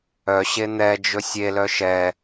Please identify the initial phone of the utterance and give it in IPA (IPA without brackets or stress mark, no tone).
œ